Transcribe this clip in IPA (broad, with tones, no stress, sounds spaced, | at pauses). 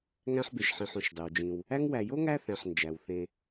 ŋ æ̃˦ ħ b e˨ ʃ ħ ĩ˨ ħ õ˩ ʃ dˤ i˩ w d͡ʒ ĩ˨ w | æ˦ ŋ w æ˨ j o˥ ŋ æ˥ θ æ̃˨ ħ n d͡ʒ æ˩ w θ ẽ˨